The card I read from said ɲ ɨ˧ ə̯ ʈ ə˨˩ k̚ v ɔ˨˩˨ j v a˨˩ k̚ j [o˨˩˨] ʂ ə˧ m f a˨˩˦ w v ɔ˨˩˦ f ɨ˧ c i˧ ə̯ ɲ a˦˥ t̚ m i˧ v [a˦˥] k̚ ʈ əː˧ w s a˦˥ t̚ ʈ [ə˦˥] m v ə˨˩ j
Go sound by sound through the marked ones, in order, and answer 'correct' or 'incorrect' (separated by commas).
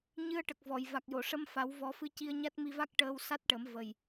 correct, correct, incorrect